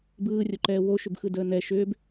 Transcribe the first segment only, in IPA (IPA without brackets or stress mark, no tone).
b